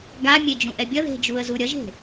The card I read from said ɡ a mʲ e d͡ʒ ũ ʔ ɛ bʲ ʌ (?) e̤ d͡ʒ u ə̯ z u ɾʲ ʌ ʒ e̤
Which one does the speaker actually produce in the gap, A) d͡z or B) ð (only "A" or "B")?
B